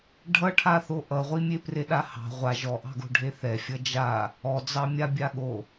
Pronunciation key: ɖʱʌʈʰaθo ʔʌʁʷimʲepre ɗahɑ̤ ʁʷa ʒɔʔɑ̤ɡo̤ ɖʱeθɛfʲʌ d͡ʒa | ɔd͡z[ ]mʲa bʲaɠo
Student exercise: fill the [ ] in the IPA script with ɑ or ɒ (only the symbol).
ɑ